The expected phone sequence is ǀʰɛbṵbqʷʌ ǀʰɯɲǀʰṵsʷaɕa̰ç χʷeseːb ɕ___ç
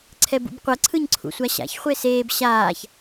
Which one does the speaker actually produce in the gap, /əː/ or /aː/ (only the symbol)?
aː